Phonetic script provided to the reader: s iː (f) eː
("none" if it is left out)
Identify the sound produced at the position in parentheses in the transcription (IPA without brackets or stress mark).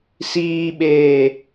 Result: ɓ